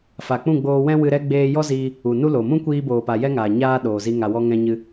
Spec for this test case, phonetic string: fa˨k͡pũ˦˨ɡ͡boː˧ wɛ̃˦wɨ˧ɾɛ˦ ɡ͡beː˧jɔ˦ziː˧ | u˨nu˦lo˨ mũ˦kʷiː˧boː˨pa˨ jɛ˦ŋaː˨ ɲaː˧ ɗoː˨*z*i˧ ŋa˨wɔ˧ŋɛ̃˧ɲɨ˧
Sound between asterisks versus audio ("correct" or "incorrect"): correct